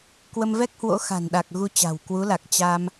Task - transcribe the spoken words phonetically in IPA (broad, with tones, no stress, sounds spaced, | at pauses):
k w ə˧ m v ɛ˦˥ k̚ h w o̰˧˥ x a̤˨˩ n ɗ a˨˩ k̚ ɣ u˧ t͡ɕ a̤˨˩ w k w u˨˦ l a˨˩ k̚ t͡ɕ a˧ m